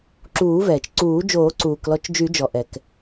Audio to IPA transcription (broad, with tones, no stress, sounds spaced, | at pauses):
ǁ uː˨˩˦ v ɛː˩ t͡ʃ ǀ uː˨˩˦ d͡ʒ oː˨˩˦ ǀ uː˩ k l ɔ˨˩˦ t͡ʃ d͡ʒ y˨˩˦ d͡ʒ ɔ˩ ʔ ɛ˩ k